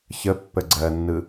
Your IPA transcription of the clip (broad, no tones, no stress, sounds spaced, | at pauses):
ç ə pː ə ɡ͡ǀ ɜ nː ɯ